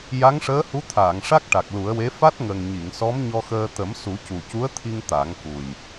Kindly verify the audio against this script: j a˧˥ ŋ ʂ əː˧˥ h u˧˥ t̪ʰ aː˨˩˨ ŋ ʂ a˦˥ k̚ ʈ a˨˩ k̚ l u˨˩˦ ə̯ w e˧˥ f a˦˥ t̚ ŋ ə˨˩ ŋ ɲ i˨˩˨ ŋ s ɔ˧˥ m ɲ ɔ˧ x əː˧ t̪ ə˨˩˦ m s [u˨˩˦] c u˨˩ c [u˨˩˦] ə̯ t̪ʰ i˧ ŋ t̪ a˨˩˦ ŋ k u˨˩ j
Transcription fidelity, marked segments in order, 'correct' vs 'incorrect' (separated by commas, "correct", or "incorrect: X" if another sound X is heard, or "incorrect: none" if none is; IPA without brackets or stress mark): correct, incorrect: u˧˥